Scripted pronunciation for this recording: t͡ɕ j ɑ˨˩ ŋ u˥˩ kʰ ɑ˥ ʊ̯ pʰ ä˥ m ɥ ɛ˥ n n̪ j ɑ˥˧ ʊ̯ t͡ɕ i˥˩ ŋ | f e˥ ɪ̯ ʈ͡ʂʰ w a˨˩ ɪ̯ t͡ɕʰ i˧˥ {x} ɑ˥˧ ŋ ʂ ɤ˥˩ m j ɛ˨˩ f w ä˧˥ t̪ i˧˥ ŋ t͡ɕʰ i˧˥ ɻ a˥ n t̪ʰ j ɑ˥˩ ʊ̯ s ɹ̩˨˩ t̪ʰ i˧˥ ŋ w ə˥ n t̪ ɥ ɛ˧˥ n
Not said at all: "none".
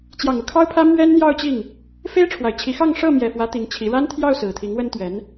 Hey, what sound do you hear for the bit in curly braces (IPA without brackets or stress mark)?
x